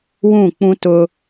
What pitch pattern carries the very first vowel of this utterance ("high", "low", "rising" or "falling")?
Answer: falling